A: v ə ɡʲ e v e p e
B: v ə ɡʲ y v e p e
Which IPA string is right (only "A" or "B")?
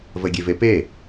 A